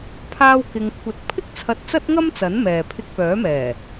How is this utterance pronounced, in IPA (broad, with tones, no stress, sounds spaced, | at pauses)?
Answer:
pʰ aː˥ w k ɪ˧ ŋ kʷʰ ɐ˨˥ t̚ pʰ ɪ˥ k̚ t͡sʰ ɐ˧ t̚ t͡s ɐ˥ t̚ ŋ ɐ˥ m t͡s ɐ˨˥ n m ɛː˨ pʰ ɪ˧ k̚ p œː˨˥ m ɛː˨˩